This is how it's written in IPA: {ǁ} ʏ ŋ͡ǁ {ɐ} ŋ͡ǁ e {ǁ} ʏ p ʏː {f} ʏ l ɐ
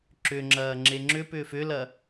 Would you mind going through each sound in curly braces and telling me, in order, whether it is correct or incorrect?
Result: correct, incorrect, incorrect, correct

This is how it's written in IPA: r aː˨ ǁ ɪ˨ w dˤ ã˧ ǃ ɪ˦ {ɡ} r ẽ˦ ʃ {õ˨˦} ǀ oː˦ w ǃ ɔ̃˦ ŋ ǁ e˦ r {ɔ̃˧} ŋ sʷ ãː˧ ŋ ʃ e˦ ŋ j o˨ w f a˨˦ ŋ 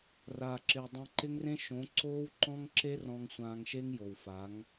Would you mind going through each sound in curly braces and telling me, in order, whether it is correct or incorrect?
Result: incorrect, correct, correct

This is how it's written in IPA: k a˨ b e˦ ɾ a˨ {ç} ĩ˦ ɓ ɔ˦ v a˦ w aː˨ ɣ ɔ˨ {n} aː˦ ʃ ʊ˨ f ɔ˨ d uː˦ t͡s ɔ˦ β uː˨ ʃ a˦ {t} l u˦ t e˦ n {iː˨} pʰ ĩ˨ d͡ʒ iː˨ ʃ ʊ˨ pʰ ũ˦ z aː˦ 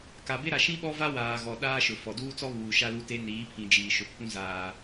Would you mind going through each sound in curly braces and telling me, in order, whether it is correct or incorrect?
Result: incorrect, incorrect, incorrect, incorrect

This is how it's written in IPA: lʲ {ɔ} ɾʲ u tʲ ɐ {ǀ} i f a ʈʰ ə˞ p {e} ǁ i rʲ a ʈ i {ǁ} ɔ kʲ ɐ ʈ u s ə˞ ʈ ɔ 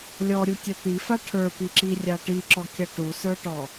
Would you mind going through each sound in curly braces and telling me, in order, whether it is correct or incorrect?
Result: correct, incorrect, incorrect, correct

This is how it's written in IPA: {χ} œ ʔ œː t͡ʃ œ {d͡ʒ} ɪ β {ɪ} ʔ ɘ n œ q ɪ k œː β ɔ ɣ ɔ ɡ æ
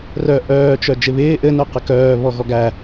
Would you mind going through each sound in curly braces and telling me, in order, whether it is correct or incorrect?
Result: incorrect, correct, incorrect

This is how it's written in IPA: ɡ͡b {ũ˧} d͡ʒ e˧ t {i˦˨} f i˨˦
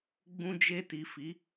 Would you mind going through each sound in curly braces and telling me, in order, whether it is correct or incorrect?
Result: correct, incorrect

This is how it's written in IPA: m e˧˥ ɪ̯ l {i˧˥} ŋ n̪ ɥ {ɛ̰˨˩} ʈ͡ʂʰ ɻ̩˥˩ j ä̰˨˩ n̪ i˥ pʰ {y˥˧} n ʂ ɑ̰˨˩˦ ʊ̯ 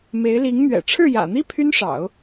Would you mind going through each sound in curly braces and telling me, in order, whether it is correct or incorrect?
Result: correct, correct, incorrect

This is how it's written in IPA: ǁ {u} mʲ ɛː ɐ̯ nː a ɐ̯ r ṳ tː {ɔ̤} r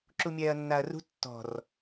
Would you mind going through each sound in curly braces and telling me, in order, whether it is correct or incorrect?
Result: correct, correct

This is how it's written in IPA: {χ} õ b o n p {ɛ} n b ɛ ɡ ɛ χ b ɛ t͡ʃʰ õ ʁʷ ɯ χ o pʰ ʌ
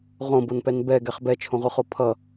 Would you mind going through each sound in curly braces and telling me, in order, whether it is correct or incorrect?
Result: incorrect, correct

